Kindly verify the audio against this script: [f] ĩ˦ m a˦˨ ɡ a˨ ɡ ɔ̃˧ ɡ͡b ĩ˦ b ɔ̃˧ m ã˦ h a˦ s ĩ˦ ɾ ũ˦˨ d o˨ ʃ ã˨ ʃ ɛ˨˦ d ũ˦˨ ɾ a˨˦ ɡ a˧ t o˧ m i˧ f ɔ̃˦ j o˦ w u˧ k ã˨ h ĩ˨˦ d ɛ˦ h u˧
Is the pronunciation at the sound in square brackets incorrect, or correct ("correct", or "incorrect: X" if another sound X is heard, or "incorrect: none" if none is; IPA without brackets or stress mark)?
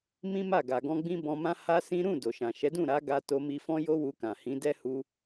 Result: incorrect: m